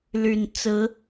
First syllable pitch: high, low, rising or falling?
low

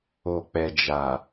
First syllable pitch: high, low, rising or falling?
low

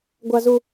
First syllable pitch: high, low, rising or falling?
high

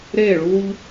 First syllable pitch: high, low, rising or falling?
falling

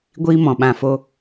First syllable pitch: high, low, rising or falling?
high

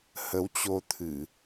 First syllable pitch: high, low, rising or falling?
rising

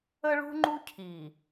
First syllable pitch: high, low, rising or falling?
high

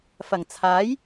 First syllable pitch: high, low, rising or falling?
low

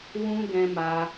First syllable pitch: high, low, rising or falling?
high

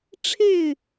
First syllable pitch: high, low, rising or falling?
falling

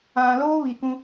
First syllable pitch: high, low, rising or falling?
low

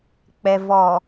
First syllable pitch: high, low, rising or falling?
low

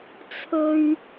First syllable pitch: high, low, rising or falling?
high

